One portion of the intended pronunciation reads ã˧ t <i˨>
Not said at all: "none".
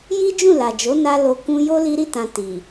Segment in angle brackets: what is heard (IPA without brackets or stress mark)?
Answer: i˨